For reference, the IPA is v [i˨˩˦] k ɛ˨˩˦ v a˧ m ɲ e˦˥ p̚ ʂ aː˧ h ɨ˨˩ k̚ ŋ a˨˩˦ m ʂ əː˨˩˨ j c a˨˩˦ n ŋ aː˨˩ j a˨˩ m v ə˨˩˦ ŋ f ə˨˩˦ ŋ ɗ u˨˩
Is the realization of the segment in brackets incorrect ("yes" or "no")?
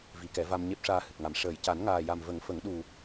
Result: no